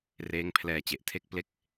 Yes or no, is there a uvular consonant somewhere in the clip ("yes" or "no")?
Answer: no